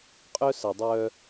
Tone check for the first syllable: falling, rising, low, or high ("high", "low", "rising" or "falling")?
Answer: high